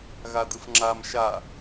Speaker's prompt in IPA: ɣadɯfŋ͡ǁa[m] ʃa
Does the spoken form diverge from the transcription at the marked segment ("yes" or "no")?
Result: no